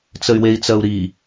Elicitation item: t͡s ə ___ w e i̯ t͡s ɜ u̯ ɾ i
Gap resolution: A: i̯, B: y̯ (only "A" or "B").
B